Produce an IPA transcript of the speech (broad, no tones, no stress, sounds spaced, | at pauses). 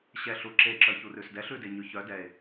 ɕ ɛ ɬ u ǁ e ǁ œ ç u r ʉ s d ɛ ɬ ʉ d e ɲ ʉ ç œ d ɛ e̯